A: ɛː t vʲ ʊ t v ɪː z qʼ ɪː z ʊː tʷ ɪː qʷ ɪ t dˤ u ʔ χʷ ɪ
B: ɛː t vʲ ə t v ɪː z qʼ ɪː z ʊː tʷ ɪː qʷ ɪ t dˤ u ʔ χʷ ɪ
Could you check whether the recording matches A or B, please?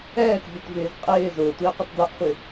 A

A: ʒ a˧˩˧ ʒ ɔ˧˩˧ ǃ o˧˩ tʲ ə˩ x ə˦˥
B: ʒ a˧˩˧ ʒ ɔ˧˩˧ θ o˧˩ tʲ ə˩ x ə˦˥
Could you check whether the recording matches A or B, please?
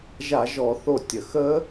B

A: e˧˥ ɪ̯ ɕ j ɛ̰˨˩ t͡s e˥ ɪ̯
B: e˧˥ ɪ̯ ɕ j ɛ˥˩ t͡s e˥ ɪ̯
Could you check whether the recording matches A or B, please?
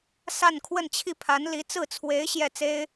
B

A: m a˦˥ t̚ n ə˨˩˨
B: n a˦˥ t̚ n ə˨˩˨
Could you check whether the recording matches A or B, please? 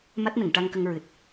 A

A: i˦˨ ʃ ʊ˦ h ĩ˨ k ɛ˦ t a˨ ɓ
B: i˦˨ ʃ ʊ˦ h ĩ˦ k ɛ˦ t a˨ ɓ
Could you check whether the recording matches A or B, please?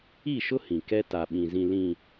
A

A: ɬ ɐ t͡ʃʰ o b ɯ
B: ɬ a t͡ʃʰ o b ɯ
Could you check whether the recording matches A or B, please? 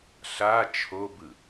B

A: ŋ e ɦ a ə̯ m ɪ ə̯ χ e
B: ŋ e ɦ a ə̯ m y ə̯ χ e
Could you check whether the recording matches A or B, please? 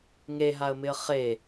A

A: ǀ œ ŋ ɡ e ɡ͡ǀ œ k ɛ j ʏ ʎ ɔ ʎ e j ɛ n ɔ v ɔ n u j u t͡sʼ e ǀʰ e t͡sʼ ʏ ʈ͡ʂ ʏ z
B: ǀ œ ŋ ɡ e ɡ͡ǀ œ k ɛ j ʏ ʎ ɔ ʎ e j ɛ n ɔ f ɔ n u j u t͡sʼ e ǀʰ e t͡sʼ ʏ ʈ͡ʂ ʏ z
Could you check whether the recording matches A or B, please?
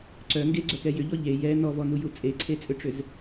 A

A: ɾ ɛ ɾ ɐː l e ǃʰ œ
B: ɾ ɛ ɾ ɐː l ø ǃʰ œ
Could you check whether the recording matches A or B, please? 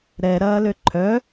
B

